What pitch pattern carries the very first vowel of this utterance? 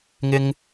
high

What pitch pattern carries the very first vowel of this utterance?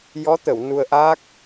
rising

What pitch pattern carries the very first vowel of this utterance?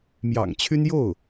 low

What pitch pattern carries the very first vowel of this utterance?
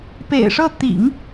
low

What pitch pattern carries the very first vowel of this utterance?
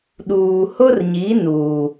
low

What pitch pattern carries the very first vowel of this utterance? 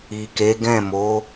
low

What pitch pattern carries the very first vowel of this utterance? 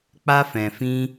high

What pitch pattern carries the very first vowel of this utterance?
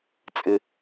low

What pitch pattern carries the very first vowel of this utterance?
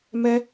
high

